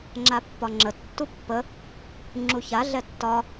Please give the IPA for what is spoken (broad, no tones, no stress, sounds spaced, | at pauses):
ŋ͡ǁ a pː ɒ ŋ͡ǁ ə tː u pː ə | ŋ͡ǁ u ç a ɮ ɛ tː ɒ